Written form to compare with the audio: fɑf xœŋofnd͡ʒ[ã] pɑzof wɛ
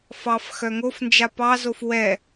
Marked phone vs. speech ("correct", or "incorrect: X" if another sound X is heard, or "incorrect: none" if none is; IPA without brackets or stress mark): incorrect: a